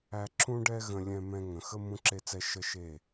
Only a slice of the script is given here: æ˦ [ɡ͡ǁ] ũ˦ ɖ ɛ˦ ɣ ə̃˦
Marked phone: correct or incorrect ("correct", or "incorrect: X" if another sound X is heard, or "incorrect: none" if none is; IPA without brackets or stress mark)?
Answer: incorrect: ǁ